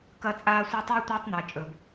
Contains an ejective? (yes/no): yes